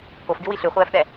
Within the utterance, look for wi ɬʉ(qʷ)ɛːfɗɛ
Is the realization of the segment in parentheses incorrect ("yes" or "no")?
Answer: yes